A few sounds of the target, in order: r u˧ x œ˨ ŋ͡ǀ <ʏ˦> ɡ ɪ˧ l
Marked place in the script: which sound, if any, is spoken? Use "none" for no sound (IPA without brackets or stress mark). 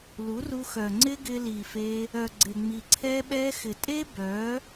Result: ɪ˦